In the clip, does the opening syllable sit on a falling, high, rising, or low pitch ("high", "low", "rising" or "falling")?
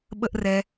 high